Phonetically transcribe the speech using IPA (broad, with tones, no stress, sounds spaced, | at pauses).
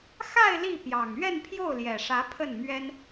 x a˥˧ ɪ̯ l i˥˩ p j ɑ˨˩ ŋ ɥ ɛ˥˧ n pʰ j o˥˩ ʊ̯ l j ɛ˨˩ ʂ ä˧˥ pʰ ə˥˩ n m ɥ ɛ˥ n